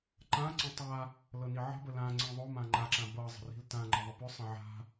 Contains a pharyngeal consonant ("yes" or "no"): yes